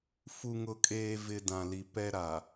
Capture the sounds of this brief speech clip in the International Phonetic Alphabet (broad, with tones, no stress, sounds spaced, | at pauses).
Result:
f u˨ ŋ ʊ˨ kʼ eː˨ v ɪ˨ d ã˨ l i˨ p ɛ˦ ɾ a˨